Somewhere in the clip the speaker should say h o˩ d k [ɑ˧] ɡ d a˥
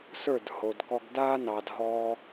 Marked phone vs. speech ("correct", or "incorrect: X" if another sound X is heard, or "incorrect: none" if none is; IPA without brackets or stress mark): incorrect: ɔ˧